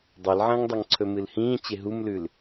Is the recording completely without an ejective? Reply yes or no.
yes